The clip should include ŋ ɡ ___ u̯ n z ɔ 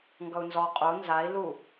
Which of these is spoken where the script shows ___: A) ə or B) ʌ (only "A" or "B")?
B